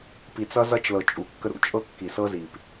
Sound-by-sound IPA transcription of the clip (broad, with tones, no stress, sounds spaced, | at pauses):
p i˨ t͡s ʌ˦ z ʌ˦ t͡ʃ l ɤ˨ t͡ʃʼ u˨ kː ə˦ ɾ ṵ˨ t͡ʃʼ ɤ˦ kː i˨ s ɤ˦ z i˨ p